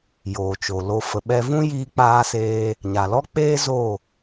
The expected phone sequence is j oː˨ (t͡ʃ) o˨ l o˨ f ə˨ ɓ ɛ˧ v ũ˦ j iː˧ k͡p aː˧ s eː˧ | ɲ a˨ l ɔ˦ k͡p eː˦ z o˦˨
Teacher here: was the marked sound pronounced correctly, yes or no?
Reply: yes